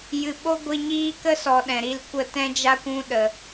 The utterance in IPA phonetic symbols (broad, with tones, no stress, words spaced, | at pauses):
jɨ˨ɓo˦ɡʷi˧ɲiː˦ kə˦sɔ˨ ɗɛ̃˨ɾi˧lkʷə˦˨ tɛ̃˧d͡ʒa˧ kʷũ˦ ɗə˨